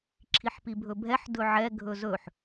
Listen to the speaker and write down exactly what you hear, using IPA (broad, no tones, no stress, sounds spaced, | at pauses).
ǁʰ i ħ p i bʱ ɵ bʱ ɛ ħ d ɵ ʕ ɛ ɡʱ ɵ z ɵ ħ